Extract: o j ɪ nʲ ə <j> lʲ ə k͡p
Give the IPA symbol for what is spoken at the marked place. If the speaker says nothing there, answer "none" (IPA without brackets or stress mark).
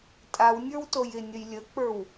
j